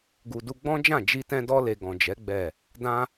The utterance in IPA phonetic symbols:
ɡu˨du˧ ɡ͡bɔ̃˦d͡ʒã˦˨ d͡ʒi˧tɛ̃˧dɔ˧le˨ ɡɔ̃˨d͡ʒɛ˨˦ ɡ͡bɛ˦˨ | dã˦

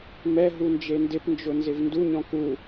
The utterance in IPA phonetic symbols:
mɛ ɦund͡ʒendɪpnd͡ʒʊ nzɪvnduɲɔ̃ ku

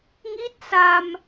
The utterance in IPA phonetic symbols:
ŋi˦˥t̚ sa˧m

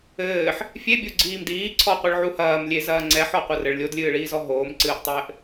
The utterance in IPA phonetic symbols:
ɘːħ | fʲebʲo ɡ͡ǀiːmdiːǀʰɔqʷɨɭ ʕuhɐːmlʲe zɐːŋ͡ǀɛħɔ qʷɐrɘɭ lʲodlʲɨːɭiːzɔ ɦoːmǀɨːʔtˤɘːʔ

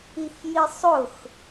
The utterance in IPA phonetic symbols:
ixjisˤʊx

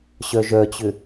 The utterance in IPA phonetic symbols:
ɕœʒœt͡ɕʏ

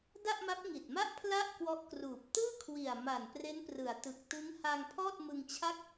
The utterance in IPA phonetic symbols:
da˥˩ʔma˦˥p̚ŋi˨˩t̚ma˥˩ʔ pʰla˥˩ʔkwɔ˦˥ʔ kruː˨˩p̚ tɯː˥˩kʰwi˨˩a̯ ma˨˩n pre˦˥nprɯ˩˦a̯tɯ˨˩k̚ tɯ˦˥ŋha˧ŋ pʰɔː˥˩t̚mɯ˧ŋt͡ɕʰa˥˩k̚

